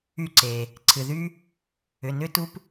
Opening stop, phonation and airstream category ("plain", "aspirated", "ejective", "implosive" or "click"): click